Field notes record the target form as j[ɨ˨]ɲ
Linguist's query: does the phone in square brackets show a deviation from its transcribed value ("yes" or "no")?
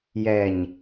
yes